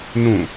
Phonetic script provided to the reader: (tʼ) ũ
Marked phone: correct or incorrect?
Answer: incorrect